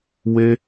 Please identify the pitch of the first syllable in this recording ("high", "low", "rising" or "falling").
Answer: high